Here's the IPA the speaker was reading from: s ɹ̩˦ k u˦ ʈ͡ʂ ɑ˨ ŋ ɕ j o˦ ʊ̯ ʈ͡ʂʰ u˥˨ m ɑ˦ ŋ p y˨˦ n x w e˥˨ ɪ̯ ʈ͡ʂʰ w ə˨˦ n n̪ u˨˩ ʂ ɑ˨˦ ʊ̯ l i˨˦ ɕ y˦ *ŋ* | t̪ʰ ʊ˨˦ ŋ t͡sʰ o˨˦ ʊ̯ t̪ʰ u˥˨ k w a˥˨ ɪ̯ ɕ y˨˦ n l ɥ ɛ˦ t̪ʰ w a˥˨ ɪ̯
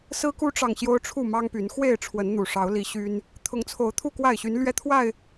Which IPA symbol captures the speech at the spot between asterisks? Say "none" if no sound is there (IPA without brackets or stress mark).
n